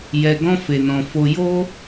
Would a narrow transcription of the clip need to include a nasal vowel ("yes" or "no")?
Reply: yes